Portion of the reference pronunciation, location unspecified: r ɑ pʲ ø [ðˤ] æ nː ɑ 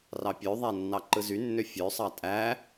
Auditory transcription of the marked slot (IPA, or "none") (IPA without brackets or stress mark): ðˤ